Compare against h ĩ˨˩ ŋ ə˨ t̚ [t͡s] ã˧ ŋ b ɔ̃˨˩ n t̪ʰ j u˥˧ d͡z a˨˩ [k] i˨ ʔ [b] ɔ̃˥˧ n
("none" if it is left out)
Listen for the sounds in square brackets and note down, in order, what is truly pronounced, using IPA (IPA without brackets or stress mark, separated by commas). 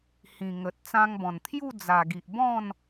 t͡s, ɡ, b